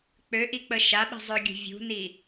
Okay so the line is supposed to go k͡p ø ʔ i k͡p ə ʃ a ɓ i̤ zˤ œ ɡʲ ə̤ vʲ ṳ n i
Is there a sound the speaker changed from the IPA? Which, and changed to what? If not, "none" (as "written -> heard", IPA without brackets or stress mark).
none